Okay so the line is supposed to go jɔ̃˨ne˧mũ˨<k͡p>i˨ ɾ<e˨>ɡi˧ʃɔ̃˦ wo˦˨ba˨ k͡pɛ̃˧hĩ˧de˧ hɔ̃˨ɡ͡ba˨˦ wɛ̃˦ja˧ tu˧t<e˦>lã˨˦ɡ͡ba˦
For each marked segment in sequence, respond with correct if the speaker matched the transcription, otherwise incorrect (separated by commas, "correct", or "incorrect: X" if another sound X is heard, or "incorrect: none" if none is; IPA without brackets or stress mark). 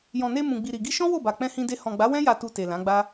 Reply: incorrect: ɡ͡b, incorrect: i˨, incorrect: e˨